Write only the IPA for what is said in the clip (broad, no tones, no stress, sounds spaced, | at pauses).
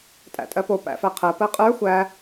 tʼ æ̰ tʼ ɜ p o p æ̰ f æ qʰ ɜ p ɜ qʼ ə˞ xʷ æ